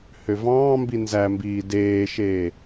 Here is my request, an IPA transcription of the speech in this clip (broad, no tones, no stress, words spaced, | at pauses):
høvɑ̃ːmbi nzæmbiː deːʃeː